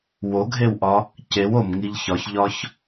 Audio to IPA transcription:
woɡʱewʔɒ | cew omŋiʎ çɒçʎɒç

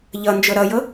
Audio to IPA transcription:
ʎʌnd͡ʒɤ ɾʌjɤ

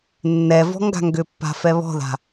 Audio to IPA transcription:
nːɛvɔ̤ ŋɡa̤ŋɡʏpːa̤ fɛβɔ̤ða̤

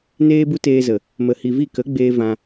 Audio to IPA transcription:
neː˦bu˦teː˧zə˨ | mə˨hi˨vi˦˨ kə˨˦ɡ͡beː˧ vã˧

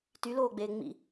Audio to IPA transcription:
tyloːɡ͡beː ŋ͡mḭ

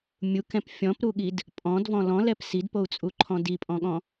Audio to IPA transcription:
mʲukɛ̃p fʲɔ̃pɾuɠid | pʼɔ̃dvɔ̃ lɔ̃lɛp sidpou̯t͡sʼuǃʰɔ̃ dipʼɔ̃ɠɔ̃

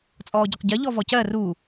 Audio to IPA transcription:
t͡sʼɔːɟɒqɟɜ ʎɔvɔcɜ ru

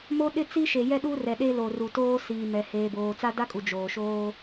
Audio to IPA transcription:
mo˦ɗɪ˦t͡si˦ʃe˨ jɛ˦ɗu˦rɛ˨ɗe˦ lo˨ru˨toː˦ siː˨mɛ˨ heː˨boː˨ t͡sa˦da˦kʼu˨ d͡ʒoː˨ʃoː˦

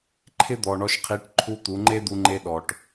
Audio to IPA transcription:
ǃʰɪ˦d̪ɔ˨ɳɔ˧ʃqʰi˨˦ʈ ǃʰu˦t̪u˨˦ ŋ͡ǃe˦d̪u˧ŋ͡ǃe˧ ɗɔ˨ʈ

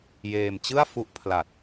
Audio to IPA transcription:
jeː˧mt͡ɕɯ˥˩a̯ fu˦˥ʔpʰla˨˩t̚

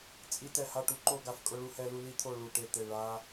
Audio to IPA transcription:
t͡sʼi˥tɛ˥˧ ha˥˧ʈu˥ǃo˥˧ɡa˥˧f kʼʊ˥ɭu˥hɛ˥lu˥ li˥t̪ʰo˥˧ ɭu˥˧ʈe˥˧t̪e˥˧ ɭa˥

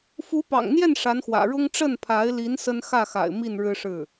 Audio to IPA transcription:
fu˧˥pɑ̰˨˩ŋn̪jɛ˥˩n ʂa˧˥nxwä̰˨˩ ɻʊ˥ŋ ʈ͡ʂə˥˩npʰa˧˥ɪ̯li˧˥n sə˥n xä˥˩xa̰˨˩ɪ̯ mi˥˩n ɻɻ̩˥ʂɻ̩˥˩

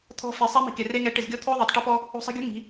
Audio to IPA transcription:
t̪ʰɔ̤˧ fe˨sˤɛ˦mi̤˨ke˨ re˦ŋɛ˨˦ ʈɪ˨zɡʲɔ˦ t̪ʰo˦ðˤo˨tˤ ʈɪ˦pɔ˦ | o̤˧sˤi̤˧ɡʲo̤˦ ŋi̤˨˦

